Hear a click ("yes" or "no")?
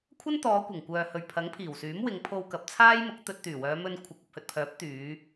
no